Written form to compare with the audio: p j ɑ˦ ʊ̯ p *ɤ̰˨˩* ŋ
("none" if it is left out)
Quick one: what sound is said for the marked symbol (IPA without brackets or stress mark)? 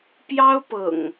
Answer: ɤ̰˨˩